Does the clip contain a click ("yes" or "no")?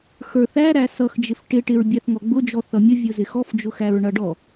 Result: no